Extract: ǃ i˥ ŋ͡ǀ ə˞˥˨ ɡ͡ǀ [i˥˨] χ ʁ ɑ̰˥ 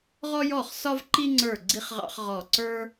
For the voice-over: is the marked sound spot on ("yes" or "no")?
no